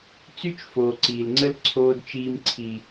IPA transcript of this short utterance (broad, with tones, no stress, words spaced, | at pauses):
t͡sy˦t͡ʃfoː˨ǀiː˨lŋ͡ǀə˦l ǀʰoː˦dt͡ʃiː˦m ǀʰi˦